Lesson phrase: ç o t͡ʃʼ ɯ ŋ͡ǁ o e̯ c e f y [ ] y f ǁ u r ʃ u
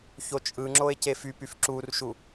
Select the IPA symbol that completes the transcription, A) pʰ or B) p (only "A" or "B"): B